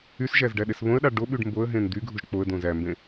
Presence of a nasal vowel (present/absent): present